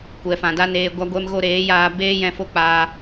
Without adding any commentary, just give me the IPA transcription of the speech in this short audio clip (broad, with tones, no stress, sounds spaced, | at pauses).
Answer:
kʷ ɛ˨ f ã˨ d a˦ n eː˧ ɡʷ a˧ ɡʷ ɛ˧ m ɣ o˧ ɾ eː˨˦ j aː˧ b eː˦ j ɛ̃˧ f o˦˨ k͡p aː˧